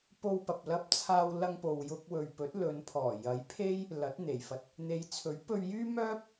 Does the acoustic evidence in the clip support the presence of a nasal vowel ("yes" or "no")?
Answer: no